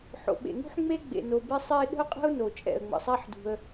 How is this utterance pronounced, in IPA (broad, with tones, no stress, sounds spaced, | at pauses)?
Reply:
ħ o̰˩ ɓ ḛ˩ ŋ ṳ˥ ħ ŋ͡m e˥ ɡ͡b ḛ˩ n o˩ b e˥ sˤ ɛ˥ ɪ̯ ɗ ə̤˥ ʊ̯ qʼ ə̤˥ ʊ̯ n o˩ t͡ʃʼ ɛ̰˩ ə̯ ŋ͡m ə̰˩ sˤ a˥ ħ d ṳ˩ ə̯